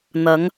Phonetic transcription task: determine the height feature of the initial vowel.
low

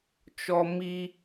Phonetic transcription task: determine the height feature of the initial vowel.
mid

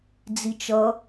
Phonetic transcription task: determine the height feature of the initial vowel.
high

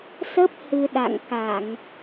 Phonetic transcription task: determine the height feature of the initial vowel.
mid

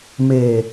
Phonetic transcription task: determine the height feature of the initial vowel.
mid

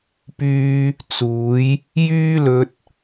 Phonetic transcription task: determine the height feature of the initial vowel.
high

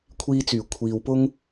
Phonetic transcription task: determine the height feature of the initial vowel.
high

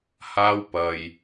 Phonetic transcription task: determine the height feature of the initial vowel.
low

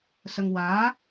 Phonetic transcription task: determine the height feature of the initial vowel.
mid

